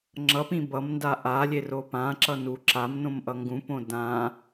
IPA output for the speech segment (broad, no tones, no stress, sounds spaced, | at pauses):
ŋ͡ǁ ʌ p ĩ b ʌ m n d a ʔ a lʲ e r o p ã ǁ ʌ n u ǁ a m n õ m ʔ ʌ ŋ ɡ ũ p õ d ã